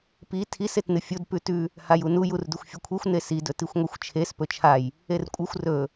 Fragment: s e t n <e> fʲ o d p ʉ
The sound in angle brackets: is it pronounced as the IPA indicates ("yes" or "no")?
no